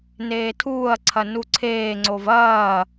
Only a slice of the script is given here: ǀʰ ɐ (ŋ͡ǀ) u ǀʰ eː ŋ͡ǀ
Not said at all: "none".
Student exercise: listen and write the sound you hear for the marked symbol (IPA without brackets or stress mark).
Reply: n